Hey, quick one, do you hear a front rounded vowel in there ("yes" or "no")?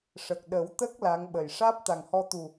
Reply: no